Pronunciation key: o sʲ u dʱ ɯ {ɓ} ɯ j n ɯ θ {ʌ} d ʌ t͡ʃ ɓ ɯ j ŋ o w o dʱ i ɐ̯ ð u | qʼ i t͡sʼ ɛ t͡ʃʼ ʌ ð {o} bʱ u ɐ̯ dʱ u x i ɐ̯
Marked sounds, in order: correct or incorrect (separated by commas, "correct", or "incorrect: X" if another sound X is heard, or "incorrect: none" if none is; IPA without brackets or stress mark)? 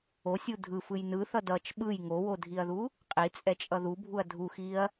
incorrect: f, correct, incorrect: u